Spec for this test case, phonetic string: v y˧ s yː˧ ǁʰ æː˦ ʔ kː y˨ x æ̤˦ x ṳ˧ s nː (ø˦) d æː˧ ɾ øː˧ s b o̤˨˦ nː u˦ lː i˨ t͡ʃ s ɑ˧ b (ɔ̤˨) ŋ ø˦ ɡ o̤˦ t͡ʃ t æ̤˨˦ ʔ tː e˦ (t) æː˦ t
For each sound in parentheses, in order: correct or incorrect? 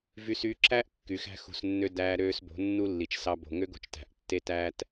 correct, incorrect, correct

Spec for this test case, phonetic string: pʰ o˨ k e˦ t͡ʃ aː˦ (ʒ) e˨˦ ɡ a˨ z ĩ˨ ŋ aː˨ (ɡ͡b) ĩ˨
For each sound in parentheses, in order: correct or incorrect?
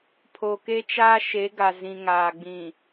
incorrect, correct

